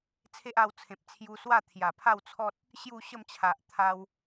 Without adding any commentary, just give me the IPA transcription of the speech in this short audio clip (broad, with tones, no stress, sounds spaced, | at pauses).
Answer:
t͡sʰ e˦ ʔ a˧ w t͡sʰ ẽ˨ p̚ t͡sʰ j u˧ s w a˥˧ t̪ʰ j a˨˩ pʰ a˥˧ w t͡sʰ ɔ˦ t̚ | ɕ j u˥˧ ɕ ə˥˧ m t͡ɕʰ a˨ ʔ t̪ʰ a˧ w